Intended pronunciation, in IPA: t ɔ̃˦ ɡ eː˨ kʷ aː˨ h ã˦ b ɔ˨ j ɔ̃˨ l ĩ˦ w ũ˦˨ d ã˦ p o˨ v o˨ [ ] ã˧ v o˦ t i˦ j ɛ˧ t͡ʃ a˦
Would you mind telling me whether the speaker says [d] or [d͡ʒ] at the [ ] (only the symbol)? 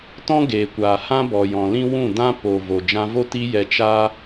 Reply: d͡ʒ